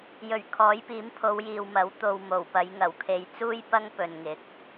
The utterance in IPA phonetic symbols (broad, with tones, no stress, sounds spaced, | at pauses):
j ɵ˨˩ ɥ kʰ ɔː˨˥ j p iː˨˥ m pʰ o˨˧ w j iː˨ w m ɐ˨˥ w t̪ o˨ w m o˨˩ w p ɐ˨˧ j ŋ ɐ˨˩ w kʰ e˨˧ j t͡s uː˥ j p ɐ˥ ŋ p ɵ˨ n ŋ ɪ˨˥ k̚